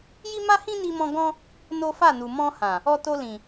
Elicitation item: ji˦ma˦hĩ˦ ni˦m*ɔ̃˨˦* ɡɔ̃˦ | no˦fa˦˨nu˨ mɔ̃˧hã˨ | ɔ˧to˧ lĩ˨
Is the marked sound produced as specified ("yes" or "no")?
no